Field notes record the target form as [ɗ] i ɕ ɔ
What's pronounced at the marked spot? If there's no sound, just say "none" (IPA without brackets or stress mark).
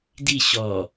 d